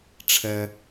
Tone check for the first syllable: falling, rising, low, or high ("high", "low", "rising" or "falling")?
low